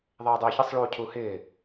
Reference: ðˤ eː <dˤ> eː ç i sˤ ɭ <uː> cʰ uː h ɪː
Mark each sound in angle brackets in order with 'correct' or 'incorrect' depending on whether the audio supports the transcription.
correct, correct

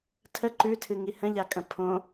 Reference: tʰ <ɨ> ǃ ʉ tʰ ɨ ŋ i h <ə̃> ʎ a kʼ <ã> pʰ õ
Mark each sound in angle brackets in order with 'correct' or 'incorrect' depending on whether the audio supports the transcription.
incorrect, correct, incorrect

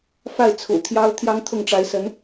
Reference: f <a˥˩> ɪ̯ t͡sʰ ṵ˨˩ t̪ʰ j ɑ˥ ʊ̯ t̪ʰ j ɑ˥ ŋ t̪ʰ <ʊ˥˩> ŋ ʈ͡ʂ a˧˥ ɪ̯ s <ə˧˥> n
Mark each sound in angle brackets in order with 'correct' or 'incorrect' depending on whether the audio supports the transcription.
correct, correct, correct

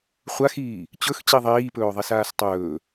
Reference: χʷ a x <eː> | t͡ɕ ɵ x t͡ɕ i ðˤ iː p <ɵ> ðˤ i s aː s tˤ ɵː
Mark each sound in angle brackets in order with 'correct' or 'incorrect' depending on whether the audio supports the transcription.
incorrect, incorrect

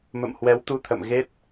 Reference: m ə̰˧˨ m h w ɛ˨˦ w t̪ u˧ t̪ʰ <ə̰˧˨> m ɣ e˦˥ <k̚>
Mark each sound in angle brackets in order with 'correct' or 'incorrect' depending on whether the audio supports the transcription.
correct, incorrect

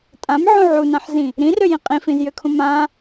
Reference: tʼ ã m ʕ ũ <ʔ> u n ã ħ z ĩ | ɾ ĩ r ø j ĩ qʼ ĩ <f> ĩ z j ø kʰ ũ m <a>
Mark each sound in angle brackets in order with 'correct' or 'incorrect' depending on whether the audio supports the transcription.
incorrect, correct, incorrect

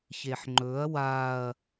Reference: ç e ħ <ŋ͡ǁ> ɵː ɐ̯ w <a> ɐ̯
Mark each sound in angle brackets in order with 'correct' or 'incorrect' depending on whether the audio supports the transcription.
incorrect, correct

